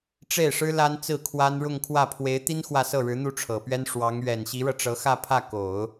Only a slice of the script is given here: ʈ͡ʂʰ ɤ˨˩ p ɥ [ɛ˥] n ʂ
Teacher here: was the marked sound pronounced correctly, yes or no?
yes